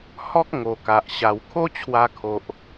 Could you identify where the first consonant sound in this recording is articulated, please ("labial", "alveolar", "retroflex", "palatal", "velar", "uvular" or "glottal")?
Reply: glottal